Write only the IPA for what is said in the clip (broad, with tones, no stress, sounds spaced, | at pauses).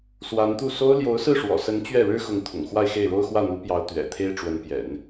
s w a˧˥ n t̪ u˥˩ s o˥ ʊ̯ l j o˧˥ ʊ̯ s ɹ̩˥˩ ʂ w ɔ̰˨˩ s ə˧˥ n t͡ɕ ɥ ɛ˥˩ ɻ ɻ̩˥ x ʊ˧˥ ŋ t̪ʰ ʊ̰˨˩ ŋ x w a˥˧ ɪ̯ x e˥˩ ɪ̯ ɻ o˥ ʊ̯ x w ä˥˩ n̪ u˧˥ p j ɑ˧˥ ʊ̯ t̪ ɥ ɛ̰˨˩ t̪ʰ e˥ ɪ̯ ʈ͡ʂ w ə˧˥ n p j ɛ̰˨˩˦ n